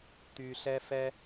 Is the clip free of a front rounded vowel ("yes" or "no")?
no